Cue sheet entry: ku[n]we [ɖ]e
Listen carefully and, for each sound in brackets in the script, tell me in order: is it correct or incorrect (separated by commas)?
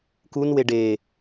correct, correct